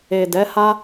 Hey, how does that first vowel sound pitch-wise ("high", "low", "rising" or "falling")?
low